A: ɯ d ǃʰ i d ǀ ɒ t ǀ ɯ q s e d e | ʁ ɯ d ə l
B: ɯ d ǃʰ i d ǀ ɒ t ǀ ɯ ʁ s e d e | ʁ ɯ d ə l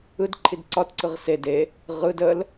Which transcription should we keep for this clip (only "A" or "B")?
B